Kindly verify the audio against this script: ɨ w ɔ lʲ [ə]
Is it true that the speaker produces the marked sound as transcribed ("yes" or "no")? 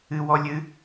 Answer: no